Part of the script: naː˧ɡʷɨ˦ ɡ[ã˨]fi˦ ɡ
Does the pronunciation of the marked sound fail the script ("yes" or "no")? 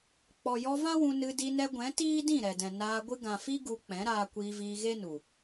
no